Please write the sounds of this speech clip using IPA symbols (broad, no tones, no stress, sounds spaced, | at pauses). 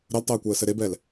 ɾ ə l tˤ əː kʷ əː s ɘ ɾ e b ɛ l